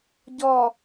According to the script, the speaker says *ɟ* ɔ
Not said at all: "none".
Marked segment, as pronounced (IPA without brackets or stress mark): ɟ